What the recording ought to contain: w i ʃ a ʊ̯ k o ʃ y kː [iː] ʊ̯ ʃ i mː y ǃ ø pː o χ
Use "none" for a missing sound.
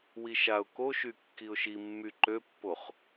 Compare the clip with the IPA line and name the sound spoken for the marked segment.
i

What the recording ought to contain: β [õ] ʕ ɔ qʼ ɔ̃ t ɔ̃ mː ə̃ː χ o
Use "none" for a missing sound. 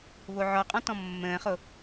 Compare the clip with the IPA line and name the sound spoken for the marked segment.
o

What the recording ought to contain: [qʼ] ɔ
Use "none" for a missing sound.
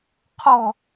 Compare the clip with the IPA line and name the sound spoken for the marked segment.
qʰ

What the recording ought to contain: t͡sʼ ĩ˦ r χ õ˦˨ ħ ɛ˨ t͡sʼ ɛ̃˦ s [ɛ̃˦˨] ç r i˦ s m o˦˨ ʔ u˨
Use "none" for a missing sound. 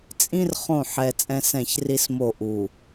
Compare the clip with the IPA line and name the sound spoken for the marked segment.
ɛ̃˦˨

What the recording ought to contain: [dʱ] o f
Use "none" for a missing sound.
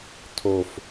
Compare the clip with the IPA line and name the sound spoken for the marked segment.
tʰ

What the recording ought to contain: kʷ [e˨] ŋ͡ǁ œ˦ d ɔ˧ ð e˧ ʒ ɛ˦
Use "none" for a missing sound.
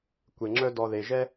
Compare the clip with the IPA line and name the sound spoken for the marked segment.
e˧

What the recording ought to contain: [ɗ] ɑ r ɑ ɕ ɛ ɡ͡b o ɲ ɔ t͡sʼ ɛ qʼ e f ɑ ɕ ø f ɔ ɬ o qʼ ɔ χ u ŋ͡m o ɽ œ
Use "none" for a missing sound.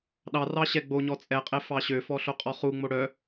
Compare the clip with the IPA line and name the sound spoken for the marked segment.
ɗ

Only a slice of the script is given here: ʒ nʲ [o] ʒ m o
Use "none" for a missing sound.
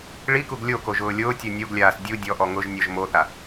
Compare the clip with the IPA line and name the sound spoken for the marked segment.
ɔ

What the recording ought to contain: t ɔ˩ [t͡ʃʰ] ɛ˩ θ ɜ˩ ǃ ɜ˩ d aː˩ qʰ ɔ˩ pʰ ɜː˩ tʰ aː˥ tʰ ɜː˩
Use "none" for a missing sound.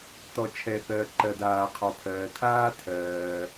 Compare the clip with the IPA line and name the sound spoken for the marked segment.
t͡ʃʰ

